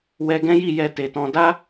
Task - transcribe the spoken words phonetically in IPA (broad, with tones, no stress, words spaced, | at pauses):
wɛ˧ɡɛ̃˦ji˦˨ jɛ˧te˨tɔ̃˧ da˦